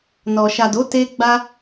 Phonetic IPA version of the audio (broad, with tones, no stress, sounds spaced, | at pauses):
n ɔ˨ ʃ a˨ d o˨˦ t e˧ ɡ͡b a˦